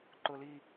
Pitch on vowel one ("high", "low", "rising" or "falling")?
low